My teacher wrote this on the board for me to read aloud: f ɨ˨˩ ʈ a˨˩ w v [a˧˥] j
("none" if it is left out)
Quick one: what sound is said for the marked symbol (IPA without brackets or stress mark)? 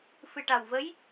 ə˧˥